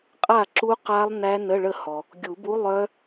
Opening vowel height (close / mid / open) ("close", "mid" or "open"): open